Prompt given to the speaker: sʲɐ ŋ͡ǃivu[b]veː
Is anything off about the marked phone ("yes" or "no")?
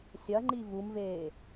yes